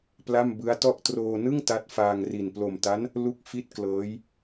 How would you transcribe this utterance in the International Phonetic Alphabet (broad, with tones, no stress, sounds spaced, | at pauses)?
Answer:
p l a˥˩ m b ɯ˦˥ a̯ t ɔ˥˩ ʔ t r oː˧ n ɯ˥˩ ŋ t a˦˥ t̚ f aː˧ ŋ r i˨˩ n p l o˨˩ m t a˦˥ n | l u˥˩ k̚ f i˥˩ t̚ k l ɤː˦˥ j